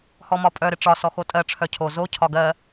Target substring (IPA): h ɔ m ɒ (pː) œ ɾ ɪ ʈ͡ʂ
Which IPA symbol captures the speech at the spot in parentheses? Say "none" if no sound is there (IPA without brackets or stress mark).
pʼ